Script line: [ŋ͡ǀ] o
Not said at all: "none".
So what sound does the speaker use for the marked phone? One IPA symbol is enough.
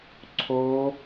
ǀʰ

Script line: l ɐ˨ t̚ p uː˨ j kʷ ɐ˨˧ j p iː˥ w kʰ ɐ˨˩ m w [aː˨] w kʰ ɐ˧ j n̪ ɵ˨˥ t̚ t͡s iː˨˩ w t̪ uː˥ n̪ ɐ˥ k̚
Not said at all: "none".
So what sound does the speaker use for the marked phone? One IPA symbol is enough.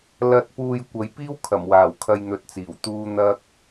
aː˨˩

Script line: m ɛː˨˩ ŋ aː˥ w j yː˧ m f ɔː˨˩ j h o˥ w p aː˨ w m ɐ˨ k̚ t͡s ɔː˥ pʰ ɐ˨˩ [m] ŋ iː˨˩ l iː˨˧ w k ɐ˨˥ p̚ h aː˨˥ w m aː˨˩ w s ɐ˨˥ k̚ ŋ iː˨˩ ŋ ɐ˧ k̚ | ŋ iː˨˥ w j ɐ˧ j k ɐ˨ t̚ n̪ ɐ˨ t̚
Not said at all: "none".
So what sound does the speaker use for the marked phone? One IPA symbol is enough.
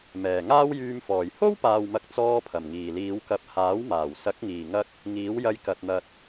m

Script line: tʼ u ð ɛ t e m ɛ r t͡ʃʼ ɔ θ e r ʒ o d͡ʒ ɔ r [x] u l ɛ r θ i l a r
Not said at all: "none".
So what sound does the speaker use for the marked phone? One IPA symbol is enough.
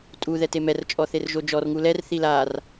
ŋ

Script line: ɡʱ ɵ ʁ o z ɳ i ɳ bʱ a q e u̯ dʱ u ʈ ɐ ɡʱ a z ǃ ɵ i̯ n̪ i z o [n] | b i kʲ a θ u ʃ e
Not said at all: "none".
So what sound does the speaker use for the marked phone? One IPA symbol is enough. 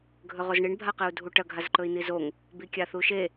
ŋ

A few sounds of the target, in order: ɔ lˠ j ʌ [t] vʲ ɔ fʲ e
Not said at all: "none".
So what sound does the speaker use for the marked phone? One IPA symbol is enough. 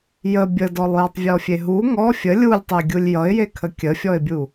tˤ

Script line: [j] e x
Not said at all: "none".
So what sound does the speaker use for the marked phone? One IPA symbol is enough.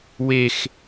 w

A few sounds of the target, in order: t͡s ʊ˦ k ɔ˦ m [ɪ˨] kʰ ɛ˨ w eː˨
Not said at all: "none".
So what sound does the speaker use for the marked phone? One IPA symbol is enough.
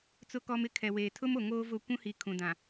ɪ˦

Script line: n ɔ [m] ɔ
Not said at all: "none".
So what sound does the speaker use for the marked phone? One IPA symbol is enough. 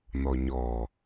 ɲ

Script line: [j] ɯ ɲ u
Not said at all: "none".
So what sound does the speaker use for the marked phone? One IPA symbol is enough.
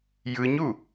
j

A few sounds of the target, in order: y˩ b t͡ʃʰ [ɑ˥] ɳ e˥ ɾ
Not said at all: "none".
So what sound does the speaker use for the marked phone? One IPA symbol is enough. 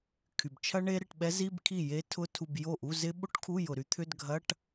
ɐ˥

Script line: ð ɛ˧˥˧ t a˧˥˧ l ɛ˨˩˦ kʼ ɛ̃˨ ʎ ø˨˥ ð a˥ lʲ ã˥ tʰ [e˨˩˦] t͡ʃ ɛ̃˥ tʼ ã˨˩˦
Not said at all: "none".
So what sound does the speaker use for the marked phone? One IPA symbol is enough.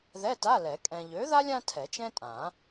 ɛ˨˩˦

